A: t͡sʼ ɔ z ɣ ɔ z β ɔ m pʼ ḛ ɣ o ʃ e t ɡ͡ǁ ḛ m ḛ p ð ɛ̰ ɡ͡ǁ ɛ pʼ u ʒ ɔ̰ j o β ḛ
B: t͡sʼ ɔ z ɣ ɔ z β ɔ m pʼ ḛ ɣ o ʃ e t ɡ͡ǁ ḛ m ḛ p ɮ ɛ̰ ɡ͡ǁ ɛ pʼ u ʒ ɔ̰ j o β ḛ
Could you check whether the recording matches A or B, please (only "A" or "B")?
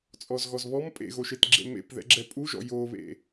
A